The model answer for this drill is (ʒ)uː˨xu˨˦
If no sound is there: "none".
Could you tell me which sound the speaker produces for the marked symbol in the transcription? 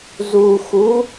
z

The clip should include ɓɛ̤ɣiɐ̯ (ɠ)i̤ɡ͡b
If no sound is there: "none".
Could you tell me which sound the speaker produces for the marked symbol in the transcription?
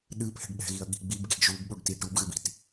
ɠ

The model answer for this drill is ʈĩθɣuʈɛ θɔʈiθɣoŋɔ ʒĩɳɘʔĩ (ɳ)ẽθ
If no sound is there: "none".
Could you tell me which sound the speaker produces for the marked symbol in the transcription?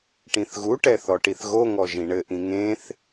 ŋ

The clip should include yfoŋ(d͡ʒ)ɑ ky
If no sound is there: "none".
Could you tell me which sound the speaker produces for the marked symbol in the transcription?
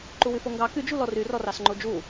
ɡ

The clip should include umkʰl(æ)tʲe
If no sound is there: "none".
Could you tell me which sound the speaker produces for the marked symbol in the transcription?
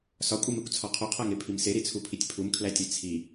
æ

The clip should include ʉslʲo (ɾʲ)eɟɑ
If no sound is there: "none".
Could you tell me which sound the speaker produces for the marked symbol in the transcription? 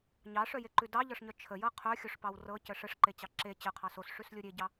ɾʲ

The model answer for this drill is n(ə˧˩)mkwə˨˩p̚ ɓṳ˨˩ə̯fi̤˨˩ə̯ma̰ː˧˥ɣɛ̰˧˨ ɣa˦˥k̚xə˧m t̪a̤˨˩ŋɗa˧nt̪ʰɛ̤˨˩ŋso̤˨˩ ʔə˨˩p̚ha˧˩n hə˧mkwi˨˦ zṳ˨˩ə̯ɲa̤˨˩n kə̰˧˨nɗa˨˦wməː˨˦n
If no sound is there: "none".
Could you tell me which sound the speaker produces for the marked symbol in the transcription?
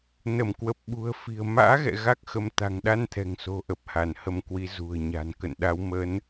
ə˧˩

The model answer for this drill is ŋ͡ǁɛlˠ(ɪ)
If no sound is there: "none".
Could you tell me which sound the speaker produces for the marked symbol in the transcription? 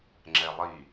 i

